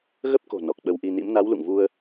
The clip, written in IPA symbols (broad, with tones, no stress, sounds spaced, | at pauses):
ɣ ə˦˥ p̚ k o̤˨˩ n ɔ˨˩ k̚ ɓ ə˧ w ʔ i˧ n ḭ˧˥ m n a˨˦ w l ṵ˧˨ ŋ v u˧ ə̯